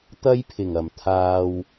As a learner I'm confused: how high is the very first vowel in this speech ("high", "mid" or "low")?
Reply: low